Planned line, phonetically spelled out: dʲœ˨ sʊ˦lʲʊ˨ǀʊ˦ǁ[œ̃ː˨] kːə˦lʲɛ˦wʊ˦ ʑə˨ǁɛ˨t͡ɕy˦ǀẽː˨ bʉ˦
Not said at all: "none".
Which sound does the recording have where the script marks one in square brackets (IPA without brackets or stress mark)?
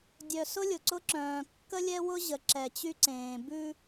œ̃ː˨